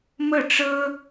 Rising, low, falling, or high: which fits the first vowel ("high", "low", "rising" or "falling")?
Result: falling